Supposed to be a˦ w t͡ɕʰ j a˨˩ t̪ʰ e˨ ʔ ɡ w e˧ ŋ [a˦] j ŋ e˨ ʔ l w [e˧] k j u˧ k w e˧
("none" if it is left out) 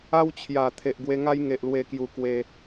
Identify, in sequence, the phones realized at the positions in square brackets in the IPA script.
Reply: a˦, e˧

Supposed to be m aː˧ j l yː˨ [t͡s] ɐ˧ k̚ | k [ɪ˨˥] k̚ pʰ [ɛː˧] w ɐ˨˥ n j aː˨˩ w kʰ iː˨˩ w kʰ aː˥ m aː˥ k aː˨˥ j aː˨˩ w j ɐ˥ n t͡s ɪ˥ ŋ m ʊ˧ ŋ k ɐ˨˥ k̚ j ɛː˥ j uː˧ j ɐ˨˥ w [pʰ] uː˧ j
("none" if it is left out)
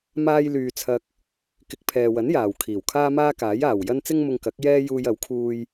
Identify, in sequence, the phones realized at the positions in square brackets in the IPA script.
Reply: t͡sʰ, ɪ˨˥, ɛː˨, kʰ

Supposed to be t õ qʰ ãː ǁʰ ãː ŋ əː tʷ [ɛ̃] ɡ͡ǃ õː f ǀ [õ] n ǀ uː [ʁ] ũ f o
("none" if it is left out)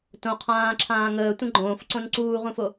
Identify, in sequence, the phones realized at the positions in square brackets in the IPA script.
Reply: ə̃, õ, ʁ

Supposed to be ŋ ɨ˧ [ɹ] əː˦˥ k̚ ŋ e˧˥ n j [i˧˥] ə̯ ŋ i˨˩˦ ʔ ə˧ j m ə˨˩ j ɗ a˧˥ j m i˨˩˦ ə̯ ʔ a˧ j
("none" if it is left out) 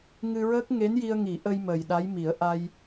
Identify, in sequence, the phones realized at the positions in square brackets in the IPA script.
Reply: ɹ, i˧

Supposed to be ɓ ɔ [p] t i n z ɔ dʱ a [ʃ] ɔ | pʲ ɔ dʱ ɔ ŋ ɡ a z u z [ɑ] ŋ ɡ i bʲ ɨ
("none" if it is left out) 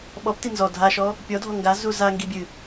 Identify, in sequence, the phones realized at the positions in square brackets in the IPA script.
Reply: p, ʃ, a

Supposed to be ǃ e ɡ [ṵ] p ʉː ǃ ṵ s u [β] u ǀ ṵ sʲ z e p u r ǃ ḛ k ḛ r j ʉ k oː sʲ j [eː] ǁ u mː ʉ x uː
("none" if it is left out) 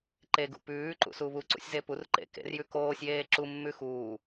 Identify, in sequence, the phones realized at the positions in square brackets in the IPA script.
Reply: ṵ, β, eː

